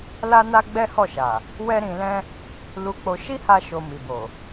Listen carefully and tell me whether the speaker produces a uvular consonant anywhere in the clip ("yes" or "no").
no